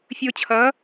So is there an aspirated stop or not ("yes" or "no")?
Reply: yes